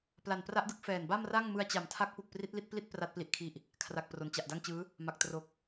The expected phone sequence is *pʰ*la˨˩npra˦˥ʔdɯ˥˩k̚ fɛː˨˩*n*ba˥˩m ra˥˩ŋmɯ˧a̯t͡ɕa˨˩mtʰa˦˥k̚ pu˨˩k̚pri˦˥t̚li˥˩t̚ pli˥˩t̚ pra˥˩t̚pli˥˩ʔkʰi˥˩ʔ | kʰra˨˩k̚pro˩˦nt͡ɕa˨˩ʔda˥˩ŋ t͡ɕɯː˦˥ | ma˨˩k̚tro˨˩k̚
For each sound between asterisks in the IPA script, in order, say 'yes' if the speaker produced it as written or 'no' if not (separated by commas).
no, yes